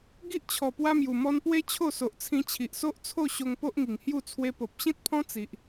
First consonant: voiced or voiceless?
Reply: voiced